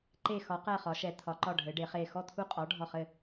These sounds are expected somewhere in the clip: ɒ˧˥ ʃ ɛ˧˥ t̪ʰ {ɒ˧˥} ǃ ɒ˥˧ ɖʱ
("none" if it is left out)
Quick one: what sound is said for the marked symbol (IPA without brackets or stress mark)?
ɒ˧˥